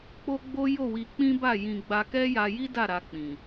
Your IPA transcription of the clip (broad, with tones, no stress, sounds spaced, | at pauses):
k͡p o˦ ɡ͡b o˦ j o˦˨ w i˧ k͡p ĩ˦ b a˦˨ j ĩ˧ ɡ͡b a˧ k ɛ˦ j a˧ j i˦ d a˦˨ ɾ a˧ k͡p ĩ˨